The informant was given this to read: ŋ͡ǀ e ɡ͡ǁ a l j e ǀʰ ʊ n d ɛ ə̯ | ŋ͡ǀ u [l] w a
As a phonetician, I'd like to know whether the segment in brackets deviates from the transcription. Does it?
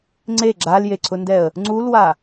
no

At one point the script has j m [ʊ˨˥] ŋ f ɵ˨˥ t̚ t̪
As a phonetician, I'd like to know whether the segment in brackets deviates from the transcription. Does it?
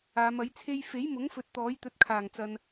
no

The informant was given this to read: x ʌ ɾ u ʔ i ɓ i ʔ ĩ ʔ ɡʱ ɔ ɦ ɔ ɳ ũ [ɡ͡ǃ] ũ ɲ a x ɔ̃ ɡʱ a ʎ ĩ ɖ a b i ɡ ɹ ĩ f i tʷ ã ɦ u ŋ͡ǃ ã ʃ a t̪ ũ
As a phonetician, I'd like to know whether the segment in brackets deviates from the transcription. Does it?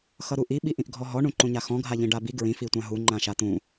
yes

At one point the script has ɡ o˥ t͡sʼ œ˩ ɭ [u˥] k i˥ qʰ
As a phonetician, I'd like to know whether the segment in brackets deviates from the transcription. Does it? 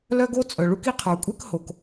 no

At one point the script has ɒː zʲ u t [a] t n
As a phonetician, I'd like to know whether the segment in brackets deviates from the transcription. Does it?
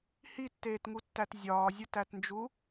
yes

